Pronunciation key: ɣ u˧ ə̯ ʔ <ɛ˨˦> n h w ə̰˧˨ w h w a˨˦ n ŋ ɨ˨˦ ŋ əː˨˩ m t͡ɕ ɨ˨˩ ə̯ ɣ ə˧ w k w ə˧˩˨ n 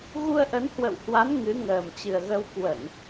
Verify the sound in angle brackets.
incorrect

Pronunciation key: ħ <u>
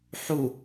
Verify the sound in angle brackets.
correct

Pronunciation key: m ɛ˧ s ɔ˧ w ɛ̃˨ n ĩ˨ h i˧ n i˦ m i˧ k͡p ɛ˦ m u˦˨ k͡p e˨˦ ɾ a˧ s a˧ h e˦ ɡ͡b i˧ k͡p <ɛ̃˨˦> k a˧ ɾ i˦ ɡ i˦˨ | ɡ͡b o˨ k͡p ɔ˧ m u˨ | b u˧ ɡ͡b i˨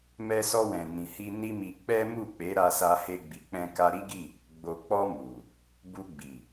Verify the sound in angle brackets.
incorrect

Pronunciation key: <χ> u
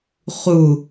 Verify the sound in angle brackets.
correct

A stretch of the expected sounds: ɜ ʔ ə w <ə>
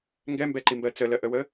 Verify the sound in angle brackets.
correct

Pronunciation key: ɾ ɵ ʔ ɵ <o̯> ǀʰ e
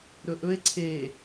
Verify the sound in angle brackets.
incorrect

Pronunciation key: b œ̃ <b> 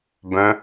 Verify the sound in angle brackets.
incorrect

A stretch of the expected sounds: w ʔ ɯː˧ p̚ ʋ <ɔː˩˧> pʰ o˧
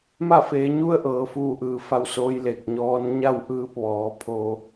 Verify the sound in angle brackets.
correct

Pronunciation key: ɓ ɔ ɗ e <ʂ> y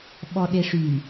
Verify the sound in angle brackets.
correct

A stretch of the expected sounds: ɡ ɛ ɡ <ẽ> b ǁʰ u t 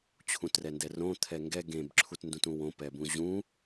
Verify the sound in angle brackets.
correct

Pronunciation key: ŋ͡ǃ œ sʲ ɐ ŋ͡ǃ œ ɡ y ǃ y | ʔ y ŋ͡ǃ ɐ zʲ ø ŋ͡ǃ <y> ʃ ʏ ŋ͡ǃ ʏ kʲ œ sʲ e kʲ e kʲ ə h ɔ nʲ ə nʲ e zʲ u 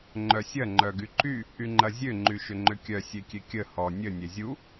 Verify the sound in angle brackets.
correct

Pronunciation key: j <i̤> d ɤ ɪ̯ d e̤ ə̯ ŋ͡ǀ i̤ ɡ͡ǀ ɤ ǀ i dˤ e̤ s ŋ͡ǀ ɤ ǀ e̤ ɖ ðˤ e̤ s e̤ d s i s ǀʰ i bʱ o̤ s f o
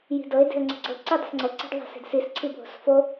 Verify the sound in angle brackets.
correct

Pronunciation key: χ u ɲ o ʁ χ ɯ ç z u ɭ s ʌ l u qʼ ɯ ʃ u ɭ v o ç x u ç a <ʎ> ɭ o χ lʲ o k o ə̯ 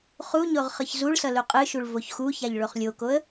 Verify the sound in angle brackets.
correct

